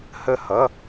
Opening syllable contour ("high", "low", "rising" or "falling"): falling